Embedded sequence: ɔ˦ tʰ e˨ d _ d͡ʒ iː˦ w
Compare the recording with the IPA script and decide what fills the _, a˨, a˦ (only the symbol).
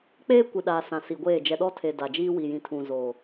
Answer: a˨